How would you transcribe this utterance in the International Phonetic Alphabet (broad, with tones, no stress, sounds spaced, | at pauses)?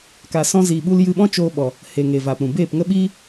k a˧ s ɔ̃˦ z iː˧ ɓ u˦ l j ɨ˧ ɓ ɔ̃˦ t͡ʃ oː˧ ɓ ɔ˨ | h e˨ ŋ eː˨ v aː˨ p ɾ ũ˨ b eː˦˨ p ŋ ə˦ ɓ iː˦